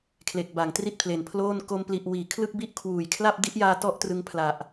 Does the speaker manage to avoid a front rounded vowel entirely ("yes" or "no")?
yes